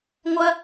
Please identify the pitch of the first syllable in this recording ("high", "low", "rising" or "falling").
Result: high